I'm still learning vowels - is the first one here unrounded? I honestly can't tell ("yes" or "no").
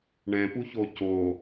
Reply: yes